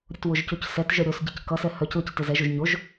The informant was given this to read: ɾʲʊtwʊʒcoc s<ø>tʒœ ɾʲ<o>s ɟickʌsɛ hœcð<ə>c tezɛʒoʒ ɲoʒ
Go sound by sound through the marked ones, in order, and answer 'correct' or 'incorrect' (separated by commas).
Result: incorrect, correct, incorrect